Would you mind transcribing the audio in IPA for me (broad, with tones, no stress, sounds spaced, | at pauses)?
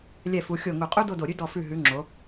lʲ ɛ˧˩ f u˩˧ xʲ o˧˩ ŋ u˧˩ qʼ u˥ d o˥˧ d o˧˩ ɾʲ ʉ˥ d ɔ˧˩ f ʉ˧˩ ɦ ʉ˩˧ ŋ͡ǁ o˩˧